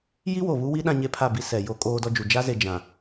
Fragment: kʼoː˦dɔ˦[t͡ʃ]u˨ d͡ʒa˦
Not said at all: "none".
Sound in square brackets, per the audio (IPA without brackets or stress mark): d͡ʒ